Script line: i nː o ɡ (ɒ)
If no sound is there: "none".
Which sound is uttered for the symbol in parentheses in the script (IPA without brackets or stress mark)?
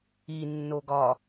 ɒ